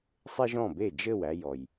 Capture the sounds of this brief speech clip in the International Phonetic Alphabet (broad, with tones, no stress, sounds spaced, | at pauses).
sˤ e˥ ʒ ɔ̃˥˩ b e˥˩ d͡ʒ ɘ˥˩ w æ˧ j ɔ˩ j